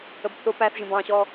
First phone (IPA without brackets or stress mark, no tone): ə